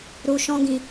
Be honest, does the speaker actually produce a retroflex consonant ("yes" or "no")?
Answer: no